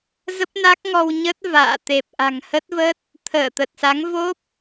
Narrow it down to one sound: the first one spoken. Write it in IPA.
z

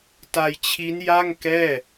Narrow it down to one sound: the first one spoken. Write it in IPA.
t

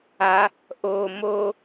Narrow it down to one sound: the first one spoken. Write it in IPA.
a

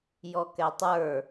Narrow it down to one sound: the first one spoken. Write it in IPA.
j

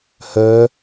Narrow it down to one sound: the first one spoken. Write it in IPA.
h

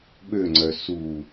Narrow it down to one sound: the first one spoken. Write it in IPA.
ɓ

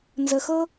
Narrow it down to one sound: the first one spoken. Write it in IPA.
n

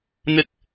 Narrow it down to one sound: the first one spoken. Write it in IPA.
n̪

